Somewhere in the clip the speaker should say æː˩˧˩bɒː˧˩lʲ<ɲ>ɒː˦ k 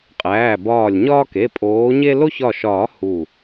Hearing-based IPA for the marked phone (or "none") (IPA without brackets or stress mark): ɲ